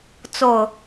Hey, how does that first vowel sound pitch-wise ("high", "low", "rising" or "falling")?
low